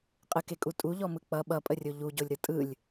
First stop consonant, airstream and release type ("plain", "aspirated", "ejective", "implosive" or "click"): ejective